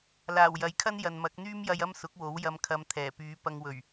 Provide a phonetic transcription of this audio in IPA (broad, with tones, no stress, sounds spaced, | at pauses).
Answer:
l aː˨˩ w j ɐ˨˥ j kʰ ɐ˥ n j ɐ˨ n m ɐ˨˥ k̚ n̪ yː˥ m j ɐ˧ j ɐ˥ m s ʊ˨˥ k̚ w o˨˥ w j ɐ˧ m kʰ ɐ˧ m t̪ʰ ɛː˨˩ p yː˨˧ p ɐ˧ ŋ w ɵ˨˩ ɥ